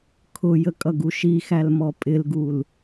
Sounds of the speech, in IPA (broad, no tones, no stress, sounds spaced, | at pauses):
kʰ ʊ j ə kʼ ʌ ɡ u ʃ i x æ l m ɔ pʼ ɪ l ɡ u l